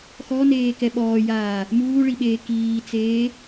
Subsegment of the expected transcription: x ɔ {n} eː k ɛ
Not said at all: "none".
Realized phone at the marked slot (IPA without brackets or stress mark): n